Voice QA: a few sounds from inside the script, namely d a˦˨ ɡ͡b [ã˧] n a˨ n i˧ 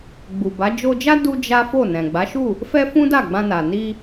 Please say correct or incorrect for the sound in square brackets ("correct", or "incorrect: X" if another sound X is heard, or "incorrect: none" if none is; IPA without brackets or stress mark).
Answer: correct